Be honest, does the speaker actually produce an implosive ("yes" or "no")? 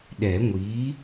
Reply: yes